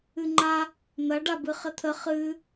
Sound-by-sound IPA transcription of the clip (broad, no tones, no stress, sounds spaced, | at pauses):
ɨ ŋ͡ǃ a | n̪ ɐ ɖ a b ɨ χ ɘ t̪ʰ ə χ ɨ